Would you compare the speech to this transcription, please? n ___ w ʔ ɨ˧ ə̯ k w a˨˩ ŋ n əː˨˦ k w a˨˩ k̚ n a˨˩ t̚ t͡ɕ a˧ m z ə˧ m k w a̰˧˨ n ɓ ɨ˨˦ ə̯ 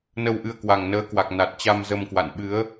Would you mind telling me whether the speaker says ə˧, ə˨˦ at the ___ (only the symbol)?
ə˧